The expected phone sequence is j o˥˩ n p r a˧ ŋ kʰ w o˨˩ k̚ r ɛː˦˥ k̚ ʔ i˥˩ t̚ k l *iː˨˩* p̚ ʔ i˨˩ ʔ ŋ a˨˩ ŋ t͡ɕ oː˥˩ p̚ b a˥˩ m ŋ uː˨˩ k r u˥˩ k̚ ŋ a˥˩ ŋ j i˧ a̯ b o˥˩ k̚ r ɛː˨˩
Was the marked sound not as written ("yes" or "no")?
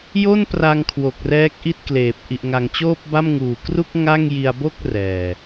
yes